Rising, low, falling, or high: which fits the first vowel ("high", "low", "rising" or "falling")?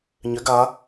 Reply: rising